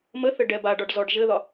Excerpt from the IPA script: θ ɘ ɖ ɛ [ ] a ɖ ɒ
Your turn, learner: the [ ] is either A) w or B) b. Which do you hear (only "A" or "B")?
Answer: B